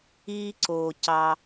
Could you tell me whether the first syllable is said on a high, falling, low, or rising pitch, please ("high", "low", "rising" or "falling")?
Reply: high